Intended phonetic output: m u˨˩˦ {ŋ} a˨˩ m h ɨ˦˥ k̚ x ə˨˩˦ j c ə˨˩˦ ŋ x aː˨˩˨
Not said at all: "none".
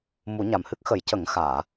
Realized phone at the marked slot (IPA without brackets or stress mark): ɲ